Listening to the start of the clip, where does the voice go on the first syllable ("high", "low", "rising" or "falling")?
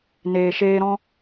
low